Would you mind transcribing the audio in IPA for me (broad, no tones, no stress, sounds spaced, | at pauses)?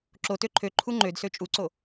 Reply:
ǁ o t ø ǃʰ ø ǃʰ u ŋ͡ǃ ø d s ø t͡ʃʼ u ǀ o